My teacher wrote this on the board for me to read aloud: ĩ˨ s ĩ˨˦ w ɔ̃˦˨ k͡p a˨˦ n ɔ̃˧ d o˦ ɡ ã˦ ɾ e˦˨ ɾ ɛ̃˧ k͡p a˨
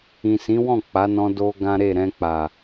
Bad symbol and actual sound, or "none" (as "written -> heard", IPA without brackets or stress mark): none